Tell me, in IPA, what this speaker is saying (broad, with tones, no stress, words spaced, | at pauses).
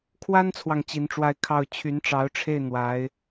kʰwa˥nt͡sʰwɑ˨ŋ t͡ɕi˧˥nʈ͡ʂwa˥˧ɪ̯ kʰɑ˥˩ʊ̯ t͡ɕʰy˧˥nʈ͡ʂɑ˧˥ʊ̯ʈ͡ʂʰe˥˩ɪ̯ n̪wa˧˥ɪ̯